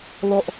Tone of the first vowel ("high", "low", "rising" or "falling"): falling